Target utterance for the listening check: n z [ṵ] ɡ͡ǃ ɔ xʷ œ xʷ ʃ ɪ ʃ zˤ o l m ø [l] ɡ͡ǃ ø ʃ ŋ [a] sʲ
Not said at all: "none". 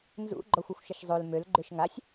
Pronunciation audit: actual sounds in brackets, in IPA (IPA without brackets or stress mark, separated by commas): ṵ, l, a